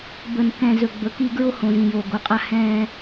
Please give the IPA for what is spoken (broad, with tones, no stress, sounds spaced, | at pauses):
b ə˨ n k ɛ̃˨ z ɵ˨ ɡ͡b ɵ˨ k i˦ ɡ ɹ o˦ h õ˨ z ĩ˨ j oː˨ ɡ o˨ qʼ a˦ h ɛ̃ː˦